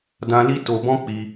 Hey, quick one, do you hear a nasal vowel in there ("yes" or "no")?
yes